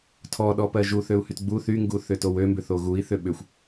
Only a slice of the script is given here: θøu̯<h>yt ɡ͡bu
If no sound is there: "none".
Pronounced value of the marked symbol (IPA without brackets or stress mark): h